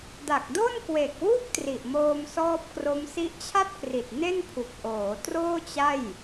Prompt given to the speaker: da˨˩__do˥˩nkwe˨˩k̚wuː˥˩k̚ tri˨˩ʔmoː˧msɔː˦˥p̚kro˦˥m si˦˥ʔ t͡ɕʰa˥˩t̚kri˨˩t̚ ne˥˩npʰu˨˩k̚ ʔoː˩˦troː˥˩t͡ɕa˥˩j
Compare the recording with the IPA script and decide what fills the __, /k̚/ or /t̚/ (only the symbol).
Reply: k̚